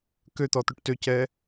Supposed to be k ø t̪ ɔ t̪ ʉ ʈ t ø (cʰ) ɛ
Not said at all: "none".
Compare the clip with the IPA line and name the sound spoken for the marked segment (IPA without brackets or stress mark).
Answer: c